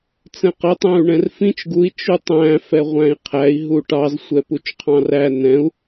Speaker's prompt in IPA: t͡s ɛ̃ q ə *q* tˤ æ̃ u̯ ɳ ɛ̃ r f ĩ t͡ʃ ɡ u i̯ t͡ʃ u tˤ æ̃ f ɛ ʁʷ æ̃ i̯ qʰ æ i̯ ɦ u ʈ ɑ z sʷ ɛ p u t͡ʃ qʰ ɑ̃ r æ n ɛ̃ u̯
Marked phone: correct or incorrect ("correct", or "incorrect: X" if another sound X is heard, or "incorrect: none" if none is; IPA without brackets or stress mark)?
incorrect: none